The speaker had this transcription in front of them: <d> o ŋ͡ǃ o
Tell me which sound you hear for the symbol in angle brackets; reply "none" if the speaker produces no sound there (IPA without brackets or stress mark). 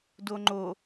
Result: d